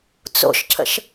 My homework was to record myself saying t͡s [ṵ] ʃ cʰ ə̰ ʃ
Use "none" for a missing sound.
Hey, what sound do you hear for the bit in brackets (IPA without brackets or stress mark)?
o̰